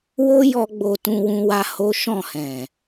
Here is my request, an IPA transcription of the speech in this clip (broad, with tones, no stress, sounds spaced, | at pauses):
w o˦ j ɔ˧ ɡ͡b o˧ t ũ˧ w ũ˦ w a˦ h o˦ ʃ ɔ̃˦˨ h ɛ̃˨